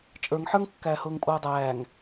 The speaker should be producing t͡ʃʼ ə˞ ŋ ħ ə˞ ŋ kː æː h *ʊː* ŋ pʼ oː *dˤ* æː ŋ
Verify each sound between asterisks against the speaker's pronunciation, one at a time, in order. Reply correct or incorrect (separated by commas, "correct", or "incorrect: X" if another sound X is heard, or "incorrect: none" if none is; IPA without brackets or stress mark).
correct, correct